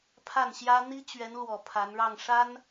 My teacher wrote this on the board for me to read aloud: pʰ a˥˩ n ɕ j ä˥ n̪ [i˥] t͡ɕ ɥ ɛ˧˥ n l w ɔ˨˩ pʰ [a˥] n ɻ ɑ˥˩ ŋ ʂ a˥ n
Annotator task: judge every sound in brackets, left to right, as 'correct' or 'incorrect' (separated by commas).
correct, incorrect